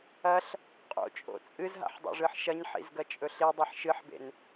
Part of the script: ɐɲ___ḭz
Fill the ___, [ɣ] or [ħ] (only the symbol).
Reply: ħ